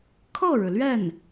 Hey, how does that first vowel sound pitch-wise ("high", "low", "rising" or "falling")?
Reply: falling